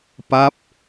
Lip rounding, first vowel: unrounded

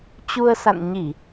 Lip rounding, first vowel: rounded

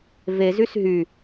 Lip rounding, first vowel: unrounded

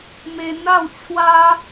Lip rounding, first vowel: unrounded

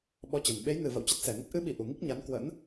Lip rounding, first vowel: rounded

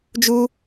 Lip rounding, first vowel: rounded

